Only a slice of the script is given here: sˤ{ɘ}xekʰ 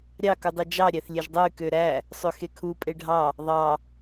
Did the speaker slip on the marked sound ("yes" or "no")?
yes